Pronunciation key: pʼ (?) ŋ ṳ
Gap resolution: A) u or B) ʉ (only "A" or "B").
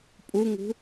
A